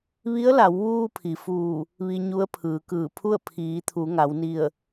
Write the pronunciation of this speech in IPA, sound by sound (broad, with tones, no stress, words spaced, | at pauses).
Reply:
ʋi˧˥ə̯la˩˧wʋuː˧ pʰi˩fuː˧˩ | ʋi˧ ɲu˧˥ə̯pʰɯː˩˧kɯː˧˩pʰu˥˨ə̯ pʰiː˩˧t̪ʰu˩˧ ŋa˩˧wni˧˩ə̯